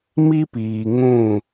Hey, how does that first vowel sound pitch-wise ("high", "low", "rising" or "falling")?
high